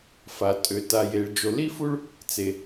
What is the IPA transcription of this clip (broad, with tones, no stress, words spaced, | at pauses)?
fa˩tʼø˩ ta˩je˩ɭ d͡ʒo˩li˥fu˥ɭ | t͡se˩